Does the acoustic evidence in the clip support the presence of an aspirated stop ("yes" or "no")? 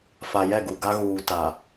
no